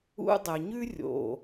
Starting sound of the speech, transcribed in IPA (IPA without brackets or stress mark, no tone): ṵ